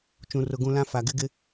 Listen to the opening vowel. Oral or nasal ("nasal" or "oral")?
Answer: nasal